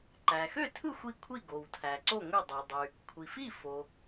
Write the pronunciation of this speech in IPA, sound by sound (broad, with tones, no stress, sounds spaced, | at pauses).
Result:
ǃ æ˩ x ø˥˩ tʰ ɯ˥˩ xʷ i˥˩ kʷʰ i˥˩ ɡ o˩ w tʰ æ˩ ǀ o˥˩ ŋʷ i˥˩ dˤ ø˩ dˤ y˩ | kʷʰ i˩ f i˥˩ f o˩